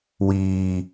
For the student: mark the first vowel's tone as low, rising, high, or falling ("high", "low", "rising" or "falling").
low